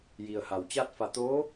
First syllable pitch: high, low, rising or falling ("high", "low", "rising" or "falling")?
low